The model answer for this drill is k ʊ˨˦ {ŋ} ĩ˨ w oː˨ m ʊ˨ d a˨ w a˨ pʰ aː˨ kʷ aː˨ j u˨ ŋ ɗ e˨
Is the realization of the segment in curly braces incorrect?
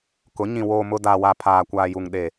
yes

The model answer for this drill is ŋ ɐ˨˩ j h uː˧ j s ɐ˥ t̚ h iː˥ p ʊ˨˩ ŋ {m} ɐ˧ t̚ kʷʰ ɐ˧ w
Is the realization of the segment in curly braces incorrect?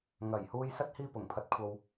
yes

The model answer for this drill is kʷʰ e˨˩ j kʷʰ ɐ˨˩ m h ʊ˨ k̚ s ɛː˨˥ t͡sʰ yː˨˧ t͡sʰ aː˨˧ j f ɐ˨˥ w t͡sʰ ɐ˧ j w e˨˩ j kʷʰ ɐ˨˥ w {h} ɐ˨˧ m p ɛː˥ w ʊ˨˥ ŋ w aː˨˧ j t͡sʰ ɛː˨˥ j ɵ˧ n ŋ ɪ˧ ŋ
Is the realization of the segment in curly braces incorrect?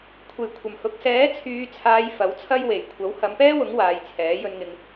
no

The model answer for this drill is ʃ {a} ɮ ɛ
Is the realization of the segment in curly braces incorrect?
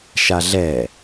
no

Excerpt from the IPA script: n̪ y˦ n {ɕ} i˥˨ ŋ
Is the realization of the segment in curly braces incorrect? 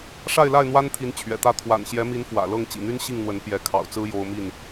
no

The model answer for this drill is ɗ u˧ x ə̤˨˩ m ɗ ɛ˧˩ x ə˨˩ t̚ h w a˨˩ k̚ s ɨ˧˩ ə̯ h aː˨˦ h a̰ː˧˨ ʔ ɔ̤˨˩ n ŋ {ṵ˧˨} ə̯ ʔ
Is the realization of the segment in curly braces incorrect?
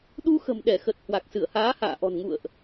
no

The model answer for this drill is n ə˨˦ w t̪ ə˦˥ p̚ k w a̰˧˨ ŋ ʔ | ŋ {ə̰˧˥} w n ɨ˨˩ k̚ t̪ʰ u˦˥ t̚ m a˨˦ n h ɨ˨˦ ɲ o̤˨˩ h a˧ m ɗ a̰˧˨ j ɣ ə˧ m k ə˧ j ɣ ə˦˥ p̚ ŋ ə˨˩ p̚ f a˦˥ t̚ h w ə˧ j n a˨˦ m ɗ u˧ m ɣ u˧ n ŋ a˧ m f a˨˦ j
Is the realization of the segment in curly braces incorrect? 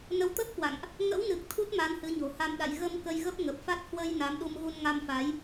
no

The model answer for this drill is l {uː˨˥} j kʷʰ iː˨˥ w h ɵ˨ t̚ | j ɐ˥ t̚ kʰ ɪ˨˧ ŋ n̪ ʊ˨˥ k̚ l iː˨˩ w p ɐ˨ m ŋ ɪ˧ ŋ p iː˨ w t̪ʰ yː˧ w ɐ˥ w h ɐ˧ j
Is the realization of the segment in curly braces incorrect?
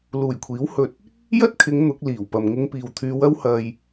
yes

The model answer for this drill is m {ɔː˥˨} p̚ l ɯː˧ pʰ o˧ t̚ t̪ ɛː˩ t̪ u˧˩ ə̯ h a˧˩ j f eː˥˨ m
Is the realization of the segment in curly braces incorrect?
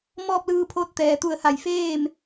no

